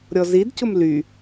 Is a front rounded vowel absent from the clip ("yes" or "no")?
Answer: no